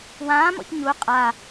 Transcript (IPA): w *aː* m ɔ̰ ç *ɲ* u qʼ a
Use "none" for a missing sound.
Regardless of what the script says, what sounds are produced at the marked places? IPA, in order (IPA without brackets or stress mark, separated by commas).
ãː, ɲ